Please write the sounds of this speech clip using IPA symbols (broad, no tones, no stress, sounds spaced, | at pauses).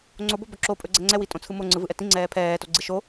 ŋ͡ǀ o b o b ɵ ǁ o pʼ ɵ ɡ͡ǀ ɛ ŋ͡ǀ ɛ w i tʼ õ t͡sʰ ɯ m o ŋ͡ǀ ɯ v ɯ ʔ ɛ t ĩ ŋ͡ǀ ɛː pʰ ɛː t o ɡ͡ǀ i ʃ o